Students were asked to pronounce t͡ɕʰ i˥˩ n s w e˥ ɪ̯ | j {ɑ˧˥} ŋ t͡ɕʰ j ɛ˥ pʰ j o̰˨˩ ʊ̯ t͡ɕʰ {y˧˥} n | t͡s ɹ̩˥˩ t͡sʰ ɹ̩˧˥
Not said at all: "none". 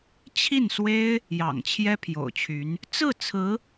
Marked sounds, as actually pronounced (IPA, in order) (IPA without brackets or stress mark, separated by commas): ɑ̰˨˩, y˧˥